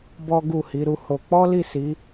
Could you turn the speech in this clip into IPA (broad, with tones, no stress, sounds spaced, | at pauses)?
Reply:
b ɔ˦ ɡ u˦˨ h i˨˦ ɾ u˦ h o˧ k͡p ɔ˦ l i˦˨ s i˨˦